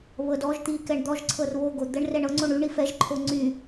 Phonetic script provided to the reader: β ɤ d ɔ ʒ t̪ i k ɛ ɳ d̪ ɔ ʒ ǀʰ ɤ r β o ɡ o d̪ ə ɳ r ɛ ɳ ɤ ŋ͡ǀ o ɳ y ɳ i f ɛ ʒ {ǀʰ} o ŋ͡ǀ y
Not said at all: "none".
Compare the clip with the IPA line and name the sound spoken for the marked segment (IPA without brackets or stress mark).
ǃʰ